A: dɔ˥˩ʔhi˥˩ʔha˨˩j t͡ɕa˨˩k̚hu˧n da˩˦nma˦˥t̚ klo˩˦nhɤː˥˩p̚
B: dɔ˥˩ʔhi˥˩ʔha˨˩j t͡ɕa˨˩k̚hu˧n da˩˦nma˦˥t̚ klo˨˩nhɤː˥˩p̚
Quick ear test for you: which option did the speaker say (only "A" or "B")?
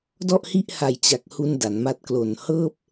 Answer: B